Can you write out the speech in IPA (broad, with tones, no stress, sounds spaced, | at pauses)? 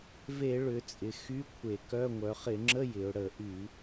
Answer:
v e˧˩˧ ɭ ʏ˩˧ t͡sʼ ɪ˩˧ x y˧˥˧ kʷʰ e˧˩˧ k œ˧˥˧ ŋʷ œ˩˧ χ ɪ˧˩˧ ŋ͡ǁ ə˧˥˧ j ɪ˩˧ ʊ̯ ɽ ə˧˩˧ ʔ y˧˩˧